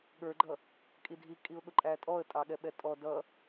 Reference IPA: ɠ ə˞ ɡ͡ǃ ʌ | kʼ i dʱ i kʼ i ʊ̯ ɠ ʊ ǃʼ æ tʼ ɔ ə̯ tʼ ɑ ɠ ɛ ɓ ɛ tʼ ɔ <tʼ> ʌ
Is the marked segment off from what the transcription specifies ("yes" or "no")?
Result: yes